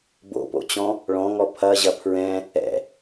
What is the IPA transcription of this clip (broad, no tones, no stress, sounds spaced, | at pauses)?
b o̰ p o̰ t͡ɕ ɔ̃ | ɭ ɔ̃ ŋ ɔ pʰ ɐ ʑ ɐ pʰ ɹ ɛ̃ | ɛ̰